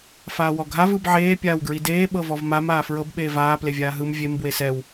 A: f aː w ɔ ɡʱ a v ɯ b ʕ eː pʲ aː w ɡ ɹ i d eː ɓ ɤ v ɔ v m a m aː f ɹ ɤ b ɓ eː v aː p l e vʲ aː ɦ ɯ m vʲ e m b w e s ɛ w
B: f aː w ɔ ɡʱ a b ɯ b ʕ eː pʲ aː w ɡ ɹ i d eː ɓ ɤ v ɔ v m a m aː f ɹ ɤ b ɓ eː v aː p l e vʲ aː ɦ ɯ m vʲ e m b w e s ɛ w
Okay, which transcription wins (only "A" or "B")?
A